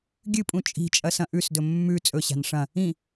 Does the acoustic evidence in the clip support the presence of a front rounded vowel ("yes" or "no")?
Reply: no